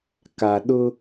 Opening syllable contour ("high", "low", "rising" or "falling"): low